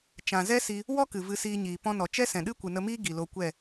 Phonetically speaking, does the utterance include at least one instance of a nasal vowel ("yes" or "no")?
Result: yes